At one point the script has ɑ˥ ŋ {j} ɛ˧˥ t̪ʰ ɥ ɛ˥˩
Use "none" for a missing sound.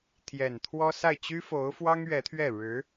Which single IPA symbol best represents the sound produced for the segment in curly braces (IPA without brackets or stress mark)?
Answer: ɥ